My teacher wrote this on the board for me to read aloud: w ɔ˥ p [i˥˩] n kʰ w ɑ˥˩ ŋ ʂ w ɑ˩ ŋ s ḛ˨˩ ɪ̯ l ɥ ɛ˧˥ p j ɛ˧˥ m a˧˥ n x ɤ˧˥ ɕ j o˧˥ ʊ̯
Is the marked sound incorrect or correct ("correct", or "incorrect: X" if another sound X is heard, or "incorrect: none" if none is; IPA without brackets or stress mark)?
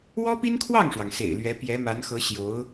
incorrect: i˥